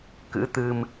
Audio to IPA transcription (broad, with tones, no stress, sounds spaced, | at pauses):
k ɨ̰˧˥ t̪ ɨ˧ m